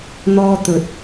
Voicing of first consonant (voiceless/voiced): voiced